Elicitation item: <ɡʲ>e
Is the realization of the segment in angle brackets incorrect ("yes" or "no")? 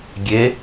no